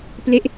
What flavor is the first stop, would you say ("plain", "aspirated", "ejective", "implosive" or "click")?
plain